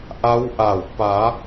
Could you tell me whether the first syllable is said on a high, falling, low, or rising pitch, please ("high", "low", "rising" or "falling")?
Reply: rising